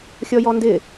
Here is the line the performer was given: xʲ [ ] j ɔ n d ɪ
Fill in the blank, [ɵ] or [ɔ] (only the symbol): ɔ